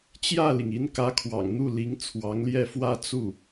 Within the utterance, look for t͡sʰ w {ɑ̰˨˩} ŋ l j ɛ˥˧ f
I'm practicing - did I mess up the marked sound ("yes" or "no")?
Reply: yes